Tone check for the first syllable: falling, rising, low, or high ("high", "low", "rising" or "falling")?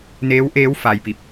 rising